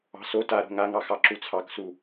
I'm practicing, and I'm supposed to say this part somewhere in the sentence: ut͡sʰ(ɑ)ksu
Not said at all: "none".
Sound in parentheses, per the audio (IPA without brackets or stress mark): ɑ